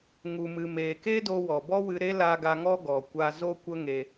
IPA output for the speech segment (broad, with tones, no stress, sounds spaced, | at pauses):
ŋ u˨ m ɨ˨ m eː˨ k e˦ d o˧ w ɔ˨ b ɔ˦ w ɨ˧ ɾ e˦ l a˧ ɡ a˧ ŋ ɔ˦ ɡ ɔ˨ kʷ a˧ z o˦ kʷ ə˦ ŋ e˧